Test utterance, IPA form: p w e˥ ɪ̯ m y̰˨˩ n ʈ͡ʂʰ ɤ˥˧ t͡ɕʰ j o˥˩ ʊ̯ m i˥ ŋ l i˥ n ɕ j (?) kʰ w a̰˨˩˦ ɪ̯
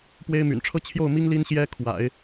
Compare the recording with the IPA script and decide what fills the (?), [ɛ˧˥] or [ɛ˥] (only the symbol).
ɛ˥